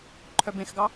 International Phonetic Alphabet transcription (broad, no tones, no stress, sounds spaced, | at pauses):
ǃʰ œ b ẽ x ɡ ɑ